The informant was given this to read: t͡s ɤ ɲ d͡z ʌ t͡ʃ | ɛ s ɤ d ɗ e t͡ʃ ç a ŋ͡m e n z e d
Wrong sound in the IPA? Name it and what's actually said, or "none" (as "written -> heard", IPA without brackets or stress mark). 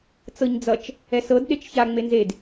none